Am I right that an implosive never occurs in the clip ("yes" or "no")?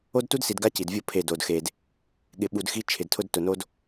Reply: no